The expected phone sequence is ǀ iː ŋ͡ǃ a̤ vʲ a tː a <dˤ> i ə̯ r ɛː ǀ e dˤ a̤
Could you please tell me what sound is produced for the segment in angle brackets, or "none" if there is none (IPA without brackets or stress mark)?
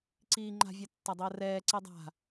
dˤ